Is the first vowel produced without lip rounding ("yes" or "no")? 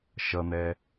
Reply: yes